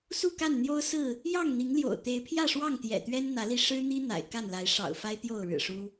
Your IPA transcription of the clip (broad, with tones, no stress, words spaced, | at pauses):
su˥˨ka˥˨nn̪jo˦ʊ̯ sɹ̩˥˨ | jɑ˥˨ŋn̪i˨˦ŋljo̰˨˩ʊ̯ t̪e˨˦ɪ̯ pʰjä˥˨ʂwɑ˥˨ŋ t̪jɛ̰˨˩t̪ɥɛ˦nn̪ä˨˦li˧ ʂɻ̩˦n̪i˦ n̪a̰˨˩ɪ̯ ka˥˨nla˨˦ɪ̯ʂɑ̰˨˩ʊ̯fa˦ɪ̯ t̪jo˥˨ʊ̯ɻɻ̩˨˩ʂu˦